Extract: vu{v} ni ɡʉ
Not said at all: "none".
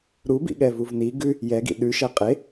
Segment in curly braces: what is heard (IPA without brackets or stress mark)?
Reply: v